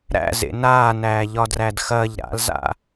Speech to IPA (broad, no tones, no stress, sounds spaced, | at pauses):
ɾ æ̰ z ḛ n aː n æː ʎ ɒ d r æ d x ɐː ʎ ɾ a̰ l z a̰